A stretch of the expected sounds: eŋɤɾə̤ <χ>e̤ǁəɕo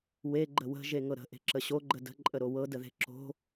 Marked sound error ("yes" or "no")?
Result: yes